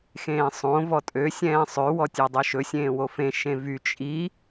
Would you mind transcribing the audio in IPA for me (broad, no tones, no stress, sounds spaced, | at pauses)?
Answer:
x ẽː sˤ õ v ɔ tʼ ø sʲ ɛ̃ː sˤ ø w ɔ tʲ ø dˤ ø ʃ ɵ sʲ ẽː w o f ẽ ʃ ẽ v y t͡ʃʼ i